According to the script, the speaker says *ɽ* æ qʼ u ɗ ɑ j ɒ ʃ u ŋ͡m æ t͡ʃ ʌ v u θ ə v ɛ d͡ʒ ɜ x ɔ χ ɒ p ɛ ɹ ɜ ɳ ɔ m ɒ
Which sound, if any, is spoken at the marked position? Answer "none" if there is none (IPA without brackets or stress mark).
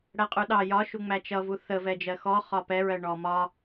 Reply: ɽ